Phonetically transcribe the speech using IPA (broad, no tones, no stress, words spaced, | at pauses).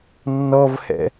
nːɔvhɛ̰